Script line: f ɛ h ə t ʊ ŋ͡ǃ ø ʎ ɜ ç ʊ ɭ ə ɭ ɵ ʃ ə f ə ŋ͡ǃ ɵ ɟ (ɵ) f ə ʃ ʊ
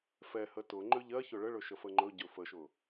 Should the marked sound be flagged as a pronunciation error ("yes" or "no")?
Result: no